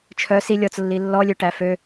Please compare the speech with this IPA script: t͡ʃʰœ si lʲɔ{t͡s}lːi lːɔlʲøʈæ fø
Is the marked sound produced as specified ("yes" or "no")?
yes